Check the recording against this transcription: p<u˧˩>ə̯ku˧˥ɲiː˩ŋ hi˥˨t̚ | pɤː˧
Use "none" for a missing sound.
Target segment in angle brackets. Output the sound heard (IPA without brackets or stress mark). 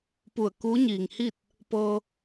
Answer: u˧˩